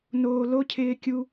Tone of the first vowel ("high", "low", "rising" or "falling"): low